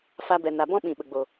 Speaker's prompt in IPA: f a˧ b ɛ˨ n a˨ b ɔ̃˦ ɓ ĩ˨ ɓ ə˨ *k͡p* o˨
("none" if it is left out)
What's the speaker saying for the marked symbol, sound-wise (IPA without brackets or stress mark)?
ɡ͡b